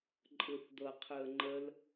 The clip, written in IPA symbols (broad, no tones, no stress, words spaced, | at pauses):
ǃʼɯθd̪ɤ qʰɯə̯ŋ͡ǃəl